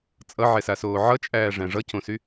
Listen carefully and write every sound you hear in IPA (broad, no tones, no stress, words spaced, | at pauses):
t͡sʼʌʕɛsasoː ʕʌt͡ʃʼæːʐæ̃ ʐʌcõsy